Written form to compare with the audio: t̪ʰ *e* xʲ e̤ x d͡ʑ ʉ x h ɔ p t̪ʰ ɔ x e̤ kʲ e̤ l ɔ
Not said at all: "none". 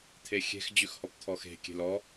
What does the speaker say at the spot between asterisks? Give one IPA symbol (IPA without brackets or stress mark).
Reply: e